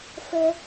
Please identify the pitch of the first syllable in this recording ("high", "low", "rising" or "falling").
high